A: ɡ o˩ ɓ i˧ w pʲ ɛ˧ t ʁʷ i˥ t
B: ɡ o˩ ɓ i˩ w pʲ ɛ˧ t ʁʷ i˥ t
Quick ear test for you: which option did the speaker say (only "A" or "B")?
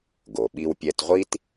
A